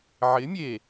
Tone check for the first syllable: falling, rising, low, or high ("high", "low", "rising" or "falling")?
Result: rising